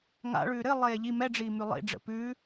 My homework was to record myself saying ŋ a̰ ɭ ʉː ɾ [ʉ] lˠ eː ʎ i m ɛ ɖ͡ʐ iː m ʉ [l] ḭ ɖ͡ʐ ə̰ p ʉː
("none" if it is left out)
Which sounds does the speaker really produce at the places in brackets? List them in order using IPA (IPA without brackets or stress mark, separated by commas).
ɘ, lˠ